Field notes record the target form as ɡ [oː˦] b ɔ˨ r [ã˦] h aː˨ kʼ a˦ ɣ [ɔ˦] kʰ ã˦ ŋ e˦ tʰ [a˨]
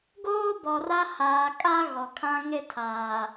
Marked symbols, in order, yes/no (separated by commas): yes, no, no, no